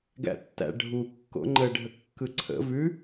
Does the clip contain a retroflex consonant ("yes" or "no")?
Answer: yes